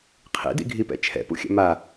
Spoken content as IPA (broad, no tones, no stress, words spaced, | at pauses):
qʰḭdḭɡʱipɛ̰ t͡ʃʰɛ̰pṵxʲɛ̰ ma